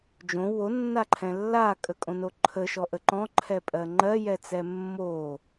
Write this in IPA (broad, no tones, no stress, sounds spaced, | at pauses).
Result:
d͡ʒ õ w o nː a ǃʰ ɛ̃ lː a kʼ ə kʼ õ n o ǃʰ ə ʃ ɔ ʔ ə ǃ ɔ̃ ǃʰ ɛ pʼ ɜ ŋ͡ǃ ɜ j ɛ t͡s ɛ mː o